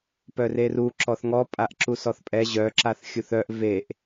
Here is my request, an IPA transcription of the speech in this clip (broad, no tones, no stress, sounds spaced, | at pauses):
p œ r e r u ǁ ɔ θ ŋ ɔ pʼ a ʔ ǁ u s ɔ θ pʼ ɛ ʑ œ ǁ a θ xʲ u θ œ ʔ v e ʔ